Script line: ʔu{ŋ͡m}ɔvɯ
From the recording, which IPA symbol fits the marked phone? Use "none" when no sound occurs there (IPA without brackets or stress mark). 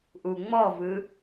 ŋ͡m